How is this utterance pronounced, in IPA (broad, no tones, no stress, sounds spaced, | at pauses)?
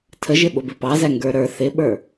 tʰ ə ʒ ɪ ɓ ʊ b ɪ p ɑ z æ ŋ ɡ ə˞ ɾ ə˞ θ ɪ ɓ ə˞